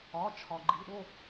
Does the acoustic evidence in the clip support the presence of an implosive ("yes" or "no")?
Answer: yes